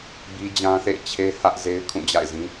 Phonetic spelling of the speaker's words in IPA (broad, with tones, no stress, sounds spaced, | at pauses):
b i˦ d͡ʑ ã˦ θ ḛ˦˨ ɪ̯ t͡ɕʰ e˦ h ä˦ ʔ z e˦ ɪ̯ kʰ ũ˦˨ d͡ʑ a̰˦˨ ɪ̯ z ĩ˦